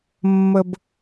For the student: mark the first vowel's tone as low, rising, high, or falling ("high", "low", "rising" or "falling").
high